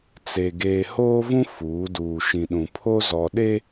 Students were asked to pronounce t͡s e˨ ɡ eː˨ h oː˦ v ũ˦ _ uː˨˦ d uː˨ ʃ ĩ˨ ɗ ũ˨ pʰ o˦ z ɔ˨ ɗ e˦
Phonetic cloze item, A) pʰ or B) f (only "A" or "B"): B